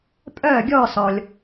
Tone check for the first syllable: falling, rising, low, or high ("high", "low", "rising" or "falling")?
falling